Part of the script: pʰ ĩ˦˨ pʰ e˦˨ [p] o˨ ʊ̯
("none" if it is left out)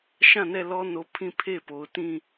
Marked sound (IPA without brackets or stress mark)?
p